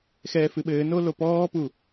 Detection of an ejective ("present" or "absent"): absent